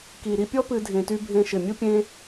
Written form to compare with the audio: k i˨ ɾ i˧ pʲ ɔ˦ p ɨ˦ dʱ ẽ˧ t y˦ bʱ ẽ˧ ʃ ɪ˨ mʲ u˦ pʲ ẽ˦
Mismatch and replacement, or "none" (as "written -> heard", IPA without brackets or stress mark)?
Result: none